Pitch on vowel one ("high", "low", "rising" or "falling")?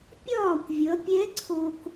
falling